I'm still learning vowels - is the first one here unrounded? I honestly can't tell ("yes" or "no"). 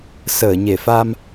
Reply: yes